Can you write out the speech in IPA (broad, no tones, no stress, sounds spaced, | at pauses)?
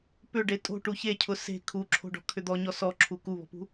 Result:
p ʏ ɖ e tʼ o̤ ʈ u ç e cʰ ʊ s e̤ kʰ u ǁʰ o̤ ɖ ɔ̤ kʰ ʏ d̪ ɔ ɲ ɔ s ɔ ǁʰ u k u β ɔ̤ p ṳ